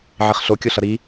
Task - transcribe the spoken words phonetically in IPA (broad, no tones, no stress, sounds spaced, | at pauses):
ʕ i χ ɬ o kʲ o ɬ ʌ ɾ i